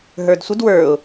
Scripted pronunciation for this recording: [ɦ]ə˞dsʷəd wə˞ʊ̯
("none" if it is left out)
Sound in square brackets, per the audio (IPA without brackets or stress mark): ɦ